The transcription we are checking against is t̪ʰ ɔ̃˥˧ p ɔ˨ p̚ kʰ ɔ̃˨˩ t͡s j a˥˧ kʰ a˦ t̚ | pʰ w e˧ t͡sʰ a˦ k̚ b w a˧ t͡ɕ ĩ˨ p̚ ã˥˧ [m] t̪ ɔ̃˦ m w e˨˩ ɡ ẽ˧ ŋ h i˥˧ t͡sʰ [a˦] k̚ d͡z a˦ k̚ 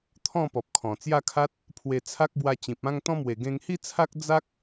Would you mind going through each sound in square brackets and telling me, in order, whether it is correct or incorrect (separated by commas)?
incorrect, correct